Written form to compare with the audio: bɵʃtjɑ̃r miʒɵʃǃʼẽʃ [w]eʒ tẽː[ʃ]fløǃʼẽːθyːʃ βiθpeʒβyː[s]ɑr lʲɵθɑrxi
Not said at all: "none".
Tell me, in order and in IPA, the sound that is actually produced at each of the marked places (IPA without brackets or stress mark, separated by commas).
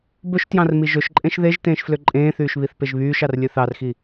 ð, ʃ, ʃ